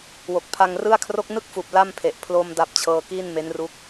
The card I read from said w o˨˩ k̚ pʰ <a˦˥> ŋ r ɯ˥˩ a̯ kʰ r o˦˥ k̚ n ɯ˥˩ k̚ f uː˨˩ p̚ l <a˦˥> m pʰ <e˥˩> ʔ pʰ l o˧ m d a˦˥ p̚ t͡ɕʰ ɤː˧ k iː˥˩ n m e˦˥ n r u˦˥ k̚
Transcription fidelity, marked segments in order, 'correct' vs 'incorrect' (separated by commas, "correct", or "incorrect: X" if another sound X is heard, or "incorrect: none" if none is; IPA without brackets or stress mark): incorrect: a˧, incorrect: a˥˩, incorrect: e˨˩